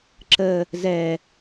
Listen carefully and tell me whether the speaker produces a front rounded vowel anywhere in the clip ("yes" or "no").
no